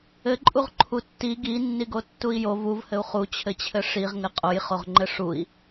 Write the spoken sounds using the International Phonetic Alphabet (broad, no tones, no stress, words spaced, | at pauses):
ɘǃʼuʁ ǃʰutːi ɡinːiɡo tːui̯jo vuvhɘu̯ χut͡ɕʰɘt͡ɕʰɘ ʂiʁŋɘ qʼojχoʁŋ͡ǃɘ ʂui̯